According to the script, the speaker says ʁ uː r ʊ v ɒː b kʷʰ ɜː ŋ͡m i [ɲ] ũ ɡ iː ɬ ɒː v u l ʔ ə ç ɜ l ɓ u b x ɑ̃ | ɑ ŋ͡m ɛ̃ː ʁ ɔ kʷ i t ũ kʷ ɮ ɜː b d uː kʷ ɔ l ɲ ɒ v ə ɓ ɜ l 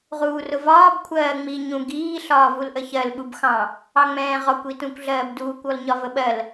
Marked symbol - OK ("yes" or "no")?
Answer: yes